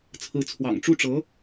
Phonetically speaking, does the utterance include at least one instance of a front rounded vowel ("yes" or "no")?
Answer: no